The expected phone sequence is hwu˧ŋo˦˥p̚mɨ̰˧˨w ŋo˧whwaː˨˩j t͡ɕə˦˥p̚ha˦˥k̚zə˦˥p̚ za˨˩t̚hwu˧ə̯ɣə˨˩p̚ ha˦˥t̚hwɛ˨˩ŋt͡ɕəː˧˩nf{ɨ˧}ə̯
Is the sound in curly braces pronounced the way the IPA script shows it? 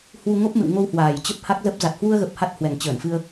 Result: yes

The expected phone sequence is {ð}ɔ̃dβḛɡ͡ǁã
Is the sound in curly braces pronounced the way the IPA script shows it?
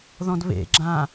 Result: yes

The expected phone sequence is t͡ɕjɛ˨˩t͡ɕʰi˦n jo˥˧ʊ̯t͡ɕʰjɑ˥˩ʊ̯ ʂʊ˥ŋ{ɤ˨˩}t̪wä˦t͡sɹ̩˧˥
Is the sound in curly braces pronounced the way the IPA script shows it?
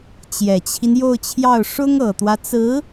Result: yes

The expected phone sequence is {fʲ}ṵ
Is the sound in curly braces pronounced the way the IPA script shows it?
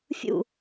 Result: yes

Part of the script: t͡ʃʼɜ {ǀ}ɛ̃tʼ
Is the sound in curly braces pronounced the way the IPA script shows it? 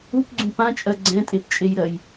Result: no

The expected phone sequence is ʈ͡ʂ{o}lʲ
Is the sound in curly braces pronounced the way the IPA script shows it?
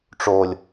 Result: yes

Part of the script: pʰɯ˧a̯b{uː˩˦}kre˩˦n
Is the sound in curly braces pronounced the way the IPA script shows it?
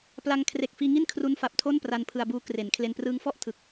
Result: no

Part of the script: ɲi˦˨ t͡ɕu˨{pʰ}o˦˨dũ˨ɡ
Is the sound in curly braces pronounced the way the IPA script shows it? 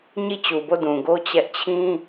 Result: no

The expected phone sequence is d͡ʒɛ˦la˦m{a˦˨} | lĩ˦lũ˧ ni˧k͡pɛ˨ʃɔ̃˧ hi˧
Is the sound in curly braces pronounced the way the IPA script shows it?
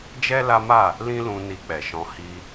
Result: yes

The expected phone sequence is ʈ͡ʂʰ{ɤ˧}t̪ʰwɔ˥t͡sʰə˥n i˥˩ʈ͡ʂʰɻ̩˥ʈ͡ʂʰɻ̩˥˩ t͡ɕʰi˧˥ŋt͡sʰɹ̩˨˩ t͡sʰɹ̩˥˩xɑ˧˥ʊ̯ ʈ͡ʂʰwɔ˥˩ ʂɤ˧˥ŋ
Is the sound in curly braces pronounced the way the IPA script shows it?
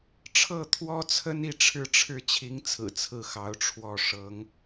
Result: no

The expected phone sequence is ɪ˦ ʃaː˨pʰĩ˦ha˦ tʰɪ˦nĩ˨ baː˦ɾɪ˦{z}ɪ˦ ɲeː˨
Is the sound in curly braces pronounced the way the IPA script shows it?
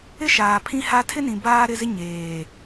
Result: yes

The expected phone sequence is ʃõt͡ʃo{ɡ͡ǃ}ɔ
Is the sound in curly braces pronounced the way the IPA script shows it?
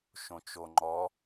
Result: no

